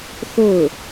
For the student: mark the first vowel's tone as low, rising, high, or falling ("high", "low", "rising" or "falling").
falling